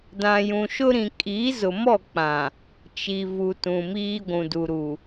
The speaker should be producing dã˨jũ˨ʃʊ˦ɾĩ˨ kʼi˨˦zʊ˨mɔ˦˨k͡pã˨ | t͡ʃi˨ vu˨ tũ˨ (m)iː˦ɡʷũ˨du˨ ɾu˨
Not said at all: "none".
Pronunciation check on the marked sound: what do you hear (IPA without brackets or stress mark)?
m